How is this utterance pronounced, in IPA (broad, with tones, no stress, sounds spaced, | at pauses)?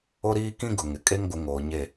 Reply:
o˦ ɾ iː˦ k ĩ˦ ɡ ʊ˨ ŋ ɪ˨ kʼ e˦ ŋ ɡʷ ɪ˨˦ ŋ oː˨ ɲ e˦˨